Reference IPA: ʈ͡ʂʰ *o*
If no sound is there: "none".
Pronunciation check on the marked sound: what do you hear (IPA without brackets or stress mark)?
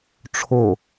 o